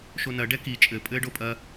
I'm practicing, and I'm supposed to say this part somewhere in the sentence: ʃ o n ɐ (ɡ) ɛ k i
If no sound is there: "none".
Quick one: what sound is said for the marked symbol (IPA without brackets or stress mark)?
ɖ